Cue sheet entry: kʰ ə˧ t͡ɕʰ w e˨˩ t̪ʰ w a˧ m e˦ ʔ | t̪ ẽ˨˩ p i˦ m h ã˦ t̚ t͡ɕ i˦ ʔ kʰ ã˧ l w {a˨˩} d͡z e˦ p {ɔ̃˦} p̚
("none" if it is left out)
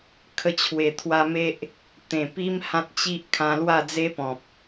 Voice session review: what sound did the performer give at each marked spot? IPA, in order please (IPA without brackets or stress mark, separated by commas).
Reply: a˥˧, ɔ̃˨